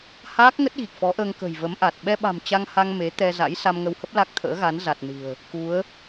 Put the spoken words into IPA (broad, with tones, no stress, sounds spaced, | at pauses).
h aː˦˥ k̚ ŋ ə˦˥ t̚ ɣ i˨˩ k̚ f ɔ˨˦ ʔ əː˧ ŋ k ə̤˨˩ j v ə˨˦ m ʔ a˨˩ t̚ ɓ ɛ˧ ɓ a̤˨˩ m t͡ɕ a˧ ŋ h a˧ ŋ m e˨˦ t̪ ɛ˧ z a̰˧˥ j s a˧ m ŋ ə˧ w h ə˦˥ p̚ l a˦˥ k̚ t̪ʰ ə̰ː˧˥ ɣ a˨˦ n z a˨˩ t̚ n ɨ̤˨˩ ə̯ | k u˨˦ ə̯